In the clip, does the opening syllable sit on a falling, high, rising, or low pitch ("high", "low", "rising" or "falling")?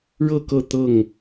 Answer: falling